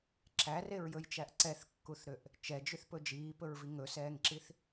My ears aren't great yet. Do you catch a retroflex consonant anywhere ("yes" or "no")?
no